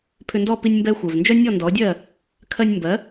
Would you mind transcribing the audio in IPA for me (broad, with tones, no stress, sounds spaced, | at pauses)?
pʰ ʏ˧ n d ɔ˥˩ p i˧ nʲ m b ɛ˧ xʷ œ˩ v n d͡ʒ œ˥ nʲ ɔ˥˩ n d ɔ˩˥ dʲ ɜ˥˩ | kʰ ɜ˧ nʲ m b ɜ˩˥